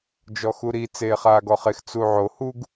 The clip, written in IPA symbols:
d͡ʒ ɔ x u ɾ i t͡s eː χ aː ɡ ɔ χ e x t͡s u ʕ o h u ɡ

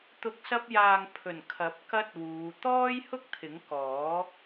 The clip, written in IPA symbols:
t̪ ʊ˨˥ k̚ s ɐ˧ p̚ j aː˨ ŋ pʰ ɵ˨˩ n kʰ ɐ˨˥ p̚ k ɐ˥ t̚ w uː˨˧ t̪ ɔː˥ j h ʊ˥ k̚ t̪ʰ ɪ˨˥ ŋ k ɔː˨˥

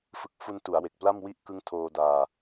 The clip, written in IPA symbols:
f ɯ˨˩ k̚ f u˧ n t u˩˦ a̯ w e˨˩ k̚ p l a˥˩ m w i˦˥ ʔ k ɯ˦˥ ŋ tʰ oː˧ d aː˧

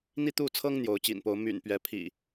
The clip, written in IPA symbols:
n̪ i˥˨ t̪ u˥˨ t͡sʰ ɤ˦ ŋ n̪ j o˨˦ ʊ̯ t͡ɕ ḭ˨˩ n p o˨˦ ʊ̯ m y̰˨˩ n p ɥ ɛ˨˦ pʰ ḭ˨˩

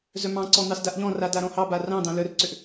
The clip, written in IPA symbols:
z œ m ɑ̃ ǀ ɔ n̪ ɑ s d a ʔ ʎ ɔ̃ r a d a ɾ ɔ̃ h ɑ b a r ɑ̃ d̪ ɑ̃ l œ r ǀ ʏ ʔ

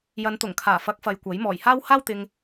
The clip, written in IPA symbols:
j ɐ˨˧ n t̪ ʊ˨˩ ŋ kʰ aː˨˩ f ɐ˨˥ k̚ f ɐ˧ j kʷ ɐ˨˥ j m ɔː˨˩ j h aː˥ w h aː˥ w t̪ ɪ˧ ŋ

